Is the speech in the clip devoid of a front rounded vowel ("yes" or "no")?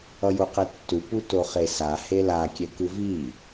yes